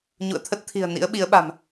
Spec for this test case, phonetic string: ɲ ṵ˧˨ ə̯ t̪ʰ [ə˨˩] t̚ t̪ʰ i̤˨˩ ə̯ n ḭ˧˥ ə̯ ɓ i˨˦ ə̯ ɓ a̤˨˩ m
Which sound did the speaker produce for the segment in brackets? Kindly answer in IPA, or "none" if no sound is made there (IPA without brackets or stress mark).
ə˦˥